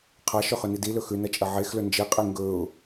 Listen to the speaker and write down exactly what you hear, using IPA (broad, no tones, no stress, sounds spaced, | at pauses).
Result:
qʰ a ʃ ɵ χ ɵ n i d i l ɵ x ʉ n ɐ t͡ʃʼ ɐ ʕ e x l ɵ n d͡ʒ i qʼ i ŋ ɡ ɵ ʊ̯